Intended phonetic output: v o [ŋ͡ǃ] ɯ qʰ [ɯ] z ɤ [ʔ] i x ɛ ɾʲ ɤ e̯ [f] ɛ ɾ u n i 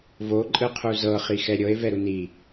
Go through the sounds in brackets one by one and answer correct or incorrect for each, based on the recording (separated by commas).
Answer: incorrect, incorrect, incorrect, incorrect